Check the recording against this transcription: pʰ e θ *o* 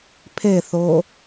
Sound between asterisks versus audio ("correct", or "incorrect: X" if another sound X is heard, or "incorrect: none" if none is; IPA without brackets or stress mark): correct